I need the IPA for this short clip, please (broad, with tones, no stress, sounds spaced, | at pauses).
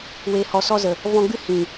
w eː˨ h ɔ˨ s ɔ˧ z ə˨ | v ɔ̃˧ ɡ͡b ɨ˦ h ĩ˨